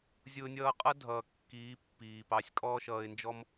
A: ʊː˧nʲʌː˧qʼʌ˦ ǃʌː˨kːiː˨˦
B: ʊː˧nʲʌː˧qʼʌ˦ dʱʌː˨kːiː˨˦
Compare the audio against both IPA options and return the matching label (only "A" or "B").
B